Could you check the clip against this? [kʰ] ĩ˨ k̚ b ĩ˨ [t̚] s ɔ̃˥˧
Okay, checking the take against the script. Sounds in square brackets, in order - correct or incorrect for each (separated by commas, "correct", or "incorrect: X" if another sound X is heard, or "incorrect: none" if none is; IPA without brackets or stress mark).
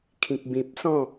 correct, incorrect: p̚